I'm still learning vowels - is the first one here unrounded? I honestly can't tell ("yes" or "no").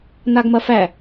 yes